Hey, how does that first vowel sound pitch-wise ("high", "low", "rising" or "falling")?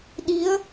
rising